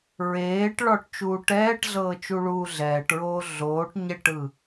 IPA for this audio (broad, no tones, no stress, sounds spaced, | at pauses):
ɹ eː ʈ ɭ ɔ ʈ t͡ʃ uː ʈ ɛː ʈ ɮ ɤː t͡ʃ u ɭ uː ɮ ɛː ʈ ɹ oː ɮ oː ʈ ɲ ɛ ʈ ɯ